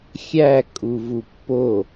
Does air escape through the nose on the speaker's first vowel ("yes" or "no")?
no